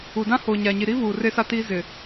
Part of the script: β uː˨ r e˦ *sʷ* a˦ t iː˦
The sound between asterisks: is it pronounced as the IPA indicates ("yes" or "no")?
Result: no